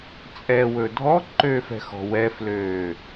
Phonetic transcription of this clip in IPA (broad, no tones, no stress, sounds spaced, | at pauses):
t͡sʼ ɛ w ɵ dʱ ɔ ǃ ø f ɛ̤ x ɔ̤ w ɛ f l øː